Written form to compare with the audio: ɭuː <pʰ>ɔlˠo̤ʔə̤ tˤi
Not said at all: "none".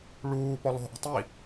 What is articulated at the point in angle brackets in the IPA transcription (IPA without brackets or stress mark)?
p